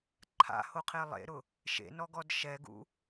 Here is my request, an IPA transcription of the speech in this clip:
ǃʰ a̰ h o qʰ e lˠ ḛ ɾ ʊ | ʃ ḛ n ɔ ɡ ɔ d ʃ ɛ ɡ ṵ

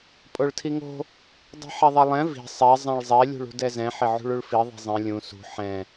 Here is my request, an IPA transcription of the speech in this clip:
pʼ o ɭ tʰ i ŋ o̤ | dˤ i̤ ħ ɛ ðˤ ɛ lˠ ɛ̃ v i̤ sˤ ɛ zˤ ɛ̃ ɭ zˤ ɛ lʲ ṳ ɭ ṳ d ɛ z ɛ̃ ħ ɪ ʕ ṳ ɭ u ɭ f i ðˤ i̤ zˤ ɛ̃ lʲ ũ s ṳ ħ ɛ̃

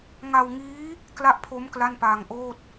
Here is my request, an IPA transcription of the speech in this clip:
ŋ a˧ w ŋ iː˦˥ | k l a˥˩ ʔ pʰ o˦˥ m k l a˥˩ n p aː˧ ŋ ʔ oː˥˩ t̚

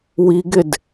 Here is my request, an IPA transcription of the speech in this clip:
w i ɡ ɪ d

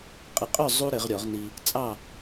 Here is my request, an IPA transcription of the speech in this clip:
qʼ ɘ˨˥ qʼ œ˥˨ zˤ u˥ ɾ ɘ˨˩˦ ʁ ɾʲ ɔ˨˩˦ ʁ n i˧ | t͡sʼ ɑ˥˨

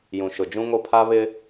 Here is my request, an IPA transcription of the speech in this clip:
j ũ˨ ʃ ʊ˨ d͡ʒ ũ˦ ŋ o˦ pʰ a˦ β ɪ˦

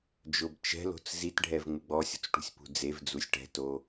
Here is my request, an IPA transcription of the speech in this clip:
d͡ʒ ʊ b t͡ʃ ɛ̤ l o̤ t͡s z i t ɖʱ ɛ v ŋ͡m ɪ ɡ͡b ɔ sʲ o̤ t͡s ʈ ṳ sʲ p ṳ d͡z e v d͡z u sʲ ʈ ɛ̤ t o

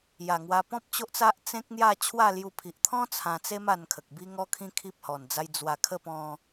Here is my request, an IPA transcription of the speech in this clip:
j a˨˩ ŋ w a˧ p ɔ̃˦ p̚ t͡ɕ o˦ ʔ t͡s a˦ ʔ t͡s ẽ˦ k̚ n̪ j a˥˧ t͡ɕʰ w a˥˧ l j u˧ pʰ i˨ ʔ t̪ʰ ɔ̃˦ t͡sʰ ã˧ t͡s e˦ m a˧ n kʰ ə˨ k̚ b i˦ ŋ ɔ˦ kʰ ĩ˦ kʰ i˦ p̚ h ɔ˧ n d͡z a˦ j d͡z w a˧ kʰ ə˥˧ p ɔ̃˦

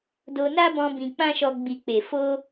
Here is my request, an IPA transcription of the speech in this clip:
d o˧ n a˦ b ɔ̃˧ b ĩ˧ k͡p ã˦ ʃ ɔ˧ ɡ͡b i˨ k͡p e˨ f o˧

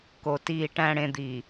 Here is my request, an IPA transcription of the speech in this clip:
k o˨ t iː˨ ʈ æ̃˨ ɽ ẽ˨ d̪ i˨

